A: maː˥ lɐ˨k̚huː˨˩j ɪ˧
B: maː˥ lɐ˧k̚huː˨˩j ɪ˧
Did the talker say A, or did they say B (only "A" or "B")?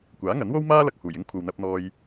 B